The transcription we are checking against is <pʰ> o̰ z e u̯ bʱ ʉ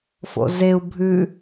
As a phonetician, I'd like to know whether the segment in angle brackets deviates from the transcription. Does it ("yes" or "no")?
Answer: yes